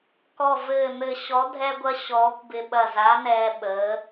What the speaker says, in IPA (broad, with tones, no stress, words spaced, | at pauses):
kɔ˧˩ vɘː˧˩n̪ɘ˧˩ ɕɔ˨˥dʱɛ˦ɡʷɐ˦ ɕɔː˨˥kʷbɪ˦ ɓɐ˧˩za˨˥ nɛː˦ɓəː˨˥